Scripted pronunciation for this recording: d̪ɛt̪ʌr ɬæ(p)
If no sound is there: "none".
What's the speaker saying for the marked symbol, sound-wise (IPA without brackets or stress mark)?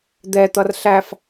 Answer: f